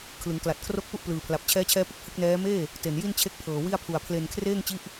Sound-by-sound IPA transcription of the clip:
kʰ l ɯ˩˦ ŋ k l a˨˩ t̚ kʰ r o˥˩ k̚ p u˥˩ ʔ p l ɯː˨˩ pʰ l a˨˩ p̚ t͡ɕʰ ɛː˦˥ t͡ɕʰ ɛː˦˥ p ɯ˥˩ k̚ h ɯ˥˩ k̚ n ɛː˦˥ m eː˥˩ | t e˨˩ n j i˥˩ n t͡ɕʰ e˦˥ k̚ pʰ ɤː˨˩ w i˥˩ a̯ pʰ u˨˩ a̯ pʰ l e˧ n kʰ r eː˥˩ ŋ t͡ɕ i˦˥ ʔ

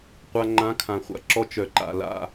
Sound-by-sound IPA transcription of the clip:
qʷ a˨ ŋ͡ǃ ã˨˦ kʰ ã˨ χʷ a̰˦ ǁ ɔ˦ t͡ʃ œ˨ ǃ a̰˨ l a̰˦

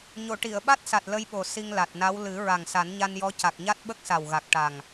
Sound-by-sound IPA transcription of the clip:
ɲ o˨˩˨ ʈ i˨˩˨ ə̯ ɓ a˦˥ t̚ s a˨˩ t̚ l ə˧ j ɓ o˨˩ s i˧ ŋ l a˨˩ t̚ n a˧˥ w l ɨ˨˩˦ ɹ a˨˩ ŋ s a˨˩˦ n ɲ a˧ n j ɔ˧˥ c a˨˩ k̚ ɲ a˦˥ t̚ ɓ ə˦˥ k̚ s a˨˩ w ɣ a˨˩ k̚ ʈ a˨˩ ŋ

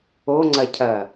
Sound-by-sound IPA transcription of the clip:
o ŋ͡ǀ ɐ cʰ ɐ

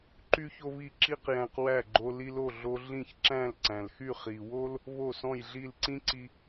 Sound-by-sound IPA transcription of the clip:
ǃ y˥ ç o˥ β i˥˩ ǁ i˥ q j æ̃˧ q w æ˥˩ ɡ͡ǃ o˧ l i˧ l o˥˩ ɮ o˧ ɮ ĩ˥˩ ç ǁ æ̃˥˩ l ǀ æ̃˩ l x y˥˩ χ i˩ w o˥ l | β o˥˩ s ɔ̃˥˩ j ɮ i˥˩ l ǀ ĩ˥ ǀ i˧

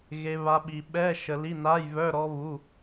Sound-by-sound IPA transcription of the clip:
ɣ e˦˥ β a˦˥ ɓ i˧ ɓ ɛ˧˥˧ ʃ ə˧ l i˧˥˧ n a˧˥˧ j β œ˧˥˧ ɾ ɔ˦˥ β u˧˥˧

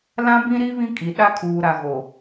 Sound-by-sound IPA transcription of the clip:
l ã˦ b ĩ˦ ɾ i˦ β ĩ˦ kʼ i˨ ɗ a˦ kʰ uː˨ ɾ a˨ ɣ o˨

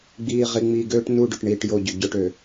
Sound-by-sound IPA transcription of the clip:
ɡ͡b iː˨ ʁ i˨ ŋ͡m iː˨ ɡ øː˦ ʈ n u˦˨ ɖ ʏ˨ ʈ ɳ iː˨ ʈ j o˦˨ ɟ ʏ˨ ɟ ʊ˦ ʈ ø˨

